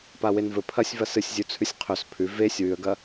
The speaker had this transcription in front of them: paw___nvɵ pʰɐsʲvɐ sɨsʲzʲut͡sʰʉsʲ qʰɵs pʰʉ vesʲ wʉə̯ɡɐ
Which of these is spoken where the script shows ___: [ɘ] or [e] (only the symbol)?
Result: e